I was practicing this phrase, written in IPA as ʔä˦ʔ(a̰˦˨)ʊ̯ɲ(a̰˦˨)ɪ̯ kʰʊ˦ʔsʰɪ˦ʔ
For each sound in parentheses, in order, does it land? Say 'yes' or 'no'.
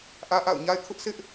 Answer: yes, no

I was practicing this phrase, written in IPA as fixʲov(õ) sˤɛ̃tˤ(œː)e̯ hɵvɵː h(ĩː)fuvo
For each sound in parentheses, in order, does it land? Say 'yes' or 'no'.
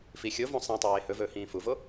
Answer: yes, no, yes

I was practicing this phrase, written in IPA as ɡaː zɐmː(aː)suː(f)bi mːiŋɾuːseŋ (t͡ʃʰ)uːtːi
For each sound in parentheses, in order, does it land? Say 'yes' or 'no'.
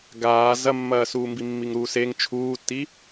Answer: no, no, yes

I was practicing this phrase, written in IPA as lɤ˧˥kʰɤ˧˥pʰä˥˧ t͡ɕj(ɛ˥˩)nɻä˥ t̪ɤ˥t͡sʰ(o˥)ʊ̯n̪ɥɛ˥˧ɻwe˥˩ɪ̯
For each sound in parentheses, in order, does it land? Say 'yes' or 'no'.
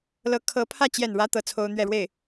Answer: yes, yes

